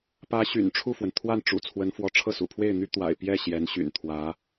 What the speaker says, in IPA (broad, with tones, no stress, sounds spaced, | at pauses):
p ä˧˥ ɕ y̰˨˩ n ʈ͡ʂʰ u˥˩ f w ə˩ n t̪ʰ w a˥˩ n ʈ͡ʂ ṵ˨˩ t͡sʰ w ə˧˥ n f w ɔ˧˥ ʈ͡ʂʰ ɤ˥˩ s ṵ˨˩ pʰ w e˥˩ ɪ̯ n̪ y˥ t̪ w a̰˨˩ ɪ̯ p j ɛ˥˩ ɕ j ɛ˧˥ n ɕ y̰˨˩ n t̪ʰ w ä˧˥